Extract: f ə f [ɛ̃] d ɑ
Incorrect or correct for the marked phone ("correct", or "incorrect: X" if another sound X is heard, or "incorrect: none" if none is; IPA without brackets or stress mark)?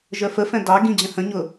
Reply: correct